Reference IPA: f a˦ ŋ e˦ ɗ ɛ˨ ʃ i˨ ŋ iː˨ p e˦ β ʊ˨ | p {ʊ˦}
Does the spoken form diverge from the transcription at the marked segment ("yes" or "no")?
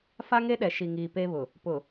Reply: yes